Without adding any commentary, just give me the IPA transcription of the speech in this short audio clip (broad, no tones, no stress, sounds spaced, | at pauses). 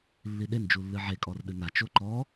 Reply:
lː i ɗ e n d͡ʒ u lː ɨ ʕ e kʼ ɔ r ɗ ɨ n a t͡ʃ o ǃ ɔ